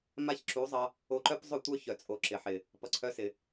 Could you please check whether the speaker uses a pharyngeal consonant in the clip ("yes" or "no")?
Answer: yes